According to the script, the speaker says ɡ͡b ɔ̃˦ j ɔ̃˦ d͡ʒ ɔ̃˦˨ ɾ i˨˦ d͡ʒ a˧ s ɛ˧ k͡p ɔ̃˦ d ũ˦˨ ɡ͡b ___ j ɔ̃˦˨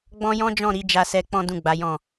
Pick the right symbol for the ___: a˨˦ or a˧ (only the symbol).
a˨˦